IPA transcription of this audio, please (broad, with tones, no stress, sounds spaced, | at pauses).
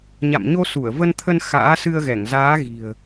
ɲ a̰˧˨ m ɲ o˧ s u˧˩ ə̯ v ə˧ n t̪ʰ ə˧ n x a̰ː˧˥ s ɨ˧ ə̯ ɣ ɛ˧˩ ŋ z aː˨˦ ɣ i̤˨˩ ə̯